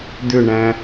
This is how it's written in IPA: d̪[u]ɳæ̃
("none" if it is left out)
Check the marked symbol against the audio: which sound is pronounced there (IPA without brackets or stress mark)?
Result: ʏ